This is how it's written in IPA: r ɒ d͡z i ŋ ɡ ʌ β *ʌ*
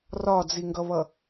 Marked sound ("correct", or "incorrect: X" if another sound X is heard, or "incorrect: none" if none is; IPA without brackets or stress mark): correct